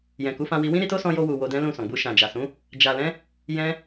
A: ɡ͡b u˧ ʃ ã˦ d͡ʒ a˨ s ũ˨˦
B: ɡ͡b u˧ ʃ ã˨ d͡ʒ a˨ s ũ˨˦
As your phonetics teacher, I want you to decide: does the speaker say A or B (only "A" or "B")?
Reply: B